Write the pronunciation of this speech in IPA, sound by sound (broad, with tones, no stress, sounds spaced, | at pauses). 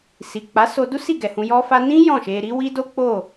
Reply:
s i˨ k͡p a˨˦ s o˧ d u˦ s i˦˨ ɡ ɛ˨ h ũ˧ j ɔ˧ f a˧ n ĩ˦ j ɔ̃˦˨ ʃ e˧ ɾ i˦ w i˦ d o˦ k͡p o˦˨